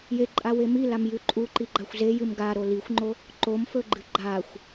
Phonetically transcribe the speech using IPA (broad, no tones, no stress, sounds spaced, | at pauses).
j e ǃʼ a w e m i l a m j ʉ ǃʼ u ǃ i ɡ͡ǃ a xʷ z e j ɨ m ɡ a ɾ o l i xʷ ŋ͡ǃ o | ǃ o m f ɵ ɡ͡ǃ ɨ ɡ͡ǃ a xʷ